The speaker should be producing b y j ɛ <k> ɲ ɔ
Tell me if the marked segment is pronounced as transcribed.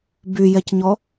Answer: no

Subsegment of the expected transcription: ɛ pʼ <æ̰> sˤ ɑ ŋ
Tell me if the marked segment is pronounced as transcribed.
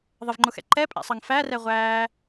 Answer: yes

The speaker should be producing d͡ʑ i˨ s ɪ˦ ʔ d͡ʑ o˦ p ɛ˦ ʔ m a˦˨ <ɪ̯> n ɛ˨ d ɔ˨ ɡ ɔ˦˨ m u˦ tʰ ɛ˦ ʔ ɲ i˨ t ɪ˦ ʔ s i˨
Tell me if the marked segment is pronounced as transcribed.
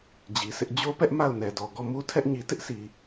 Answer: no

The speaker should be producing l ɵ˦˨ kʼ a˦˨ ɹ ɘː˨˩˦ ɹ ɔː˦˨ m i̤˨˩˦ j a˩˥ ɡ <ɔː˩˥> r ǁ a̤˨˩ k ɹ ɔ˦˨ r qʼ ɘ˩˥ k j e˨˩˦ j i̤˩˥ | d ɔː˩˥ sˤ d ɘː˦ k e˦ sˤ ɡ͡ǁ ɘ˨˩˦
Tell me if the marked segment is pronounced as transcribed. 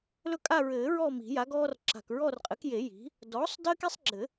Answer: no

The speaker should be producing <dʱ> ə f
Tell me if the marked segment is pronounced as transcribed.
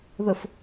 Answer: no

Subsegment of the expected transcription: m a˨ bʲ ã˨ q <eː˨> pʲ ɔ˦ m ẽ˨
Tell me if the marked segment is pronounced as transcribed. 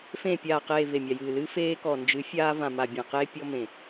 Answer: no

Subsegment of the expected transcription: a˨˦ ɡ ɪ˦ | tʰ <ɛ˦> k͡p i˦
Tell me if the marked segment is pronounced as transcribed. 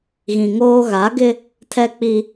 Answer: yes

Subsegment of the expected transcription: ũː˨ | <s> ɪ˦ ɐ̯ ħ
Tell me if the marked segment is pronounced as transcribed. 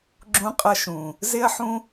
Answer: no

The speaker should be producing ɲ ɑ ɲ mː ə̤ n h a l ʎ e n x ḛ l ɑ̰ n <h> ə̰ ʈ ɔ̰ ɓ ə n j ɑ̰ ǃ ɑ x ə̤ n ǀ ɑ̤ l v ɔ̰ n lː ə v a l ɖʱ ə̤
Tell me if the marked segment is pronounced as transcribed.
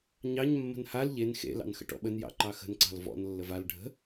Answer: no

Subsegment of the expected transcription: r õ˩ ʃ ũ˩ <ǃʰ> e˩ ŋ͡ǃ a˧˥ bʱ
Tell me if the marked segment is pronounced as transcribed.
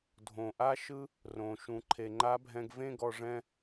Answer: yes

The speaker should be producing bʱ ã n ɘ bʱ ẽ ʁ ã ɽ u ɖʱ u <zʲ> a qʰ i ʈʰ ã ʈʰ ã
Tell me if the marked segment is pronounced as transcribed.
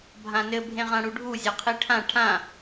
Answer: yes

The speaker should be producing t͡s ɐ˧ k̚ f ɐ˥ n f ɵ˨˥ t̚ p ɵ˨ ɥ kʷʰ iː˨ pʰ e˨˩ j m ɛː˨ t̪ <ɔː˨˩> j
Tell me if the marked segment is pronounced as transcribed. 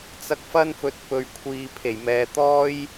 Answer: no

